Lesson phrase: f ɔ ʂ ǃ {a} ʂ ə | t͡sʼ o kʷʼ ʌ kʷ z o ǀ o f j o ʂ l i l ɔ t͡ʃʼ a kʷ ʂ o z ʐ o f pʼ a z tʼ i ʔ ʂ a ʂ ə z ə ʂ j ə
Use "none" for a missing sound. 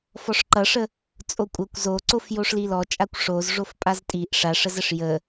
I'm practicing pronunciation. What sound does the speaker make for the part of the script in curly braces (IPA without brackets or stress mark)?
ʌ